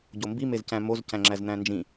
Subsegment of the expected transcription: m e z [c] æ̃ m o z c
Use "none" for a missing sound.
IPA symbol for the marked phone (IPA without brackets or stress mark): c